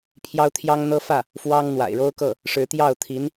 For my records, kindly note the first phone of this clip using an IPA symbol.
pʰ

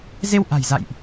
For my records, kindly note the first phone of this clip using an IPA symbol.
z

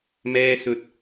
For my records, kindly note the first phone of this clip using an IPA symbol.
m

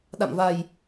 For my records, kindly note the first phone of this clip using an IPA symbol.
ɗ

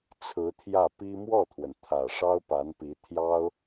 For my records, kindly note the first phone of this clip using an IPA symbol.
t͡sʰ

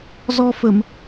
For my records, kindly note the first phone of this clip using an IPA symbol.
z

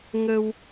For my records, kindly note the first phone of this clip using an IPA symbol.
ŋ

